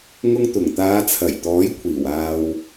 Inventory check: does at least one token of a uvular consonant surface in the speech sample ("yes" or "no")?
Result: no